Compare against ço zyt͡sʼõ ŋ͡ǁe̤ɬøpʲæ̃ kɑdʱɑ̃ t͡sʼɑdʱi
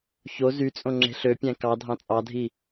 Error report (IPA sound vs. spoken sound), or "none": none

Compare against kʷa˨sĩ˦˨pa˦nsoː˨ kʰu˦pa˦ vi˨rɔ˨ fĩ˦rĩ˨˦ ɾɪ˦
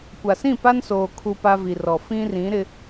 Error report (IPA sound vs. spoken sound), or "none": none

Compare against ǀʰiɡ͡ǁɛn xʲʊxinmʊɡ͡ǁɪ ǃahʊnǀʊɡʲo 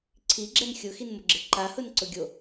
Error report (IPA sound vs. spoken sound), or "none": none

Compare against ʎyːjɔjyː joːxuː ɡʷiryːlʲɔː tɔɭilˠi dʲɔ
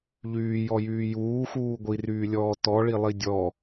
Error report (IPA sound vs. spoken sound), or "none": oː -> uː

